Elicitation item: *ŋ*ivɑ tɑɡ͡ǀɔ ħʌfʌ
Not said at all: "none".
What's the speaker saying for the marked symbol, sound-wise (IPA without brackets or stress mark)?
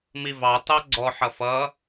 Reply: m